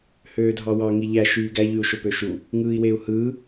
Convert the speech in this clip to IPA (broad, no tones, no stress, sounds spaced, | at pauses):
h øː dʱ ɑ w ɑ ŋ i ʎ æ ʃ yː ɡ æ ʎ y u̯ ʃ o p ø ʃ u | ŋ ɯː i̯ w e u̯ h ɯː